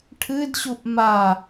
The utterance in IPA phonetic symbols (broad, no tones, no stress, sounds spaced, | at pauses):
ʈʰ ɨ d ɕ u ʔ m a